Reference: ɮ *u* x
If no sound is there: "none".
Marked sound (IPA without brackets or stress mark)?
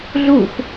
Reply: u